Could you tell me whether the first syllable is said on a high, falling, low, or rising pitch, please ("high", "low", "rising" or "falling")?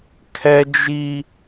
high